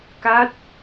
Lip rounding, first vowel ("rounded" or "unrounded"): unrounded